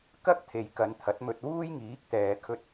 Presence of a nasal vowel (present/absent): absent